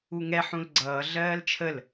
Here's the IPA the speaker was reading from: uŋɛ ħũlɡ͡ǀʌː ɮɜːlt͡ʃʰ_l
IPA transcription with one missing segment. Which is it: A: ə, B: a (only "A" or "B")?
A